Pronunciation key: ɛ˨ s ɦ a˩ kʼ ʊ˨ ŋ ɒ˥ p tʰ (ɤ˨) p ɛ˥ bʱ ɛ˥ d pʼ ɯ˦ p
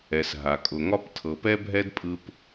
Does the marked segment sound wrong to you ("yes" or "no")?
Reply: no